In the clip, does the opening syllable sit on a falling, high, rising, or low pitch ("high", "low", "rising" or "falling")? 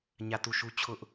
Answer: falling